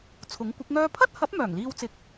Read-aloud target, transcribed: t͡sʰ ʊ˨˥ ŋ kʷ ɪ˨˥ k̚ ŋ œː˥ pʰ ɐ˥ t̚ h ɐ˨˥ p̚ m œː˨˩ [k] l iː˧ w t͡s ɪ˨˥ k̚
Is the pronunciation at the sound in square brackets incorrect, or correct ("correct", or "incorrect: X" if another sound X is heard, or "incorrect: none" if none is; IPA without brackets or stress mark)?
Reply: incorrect: ŋ